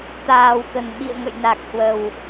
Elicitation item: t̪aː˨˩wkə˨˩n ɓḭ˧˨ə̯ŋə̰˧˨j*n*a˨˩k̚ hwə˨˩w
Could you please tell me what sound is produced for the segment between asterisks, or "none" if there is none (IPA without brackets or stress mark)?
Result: n